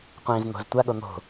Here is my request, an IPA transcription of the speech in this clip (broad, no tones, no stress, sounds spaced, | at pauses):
qʷ ĩː z n̪ o̤ z tʷ a ɠ o n̪ o̤